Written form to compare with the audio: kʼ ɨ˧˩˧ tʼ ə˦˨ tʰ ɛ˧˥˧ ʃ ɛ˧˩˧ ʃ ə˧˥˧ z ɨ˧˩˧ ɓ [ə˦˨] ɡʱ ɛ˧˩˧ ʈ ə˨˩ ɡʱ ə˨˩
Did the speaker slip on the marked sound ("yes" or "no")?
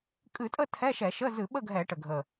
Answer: no